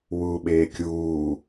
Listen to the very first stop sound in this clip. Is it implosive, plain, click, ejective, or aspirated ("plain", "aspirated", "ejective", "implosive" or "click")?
implosive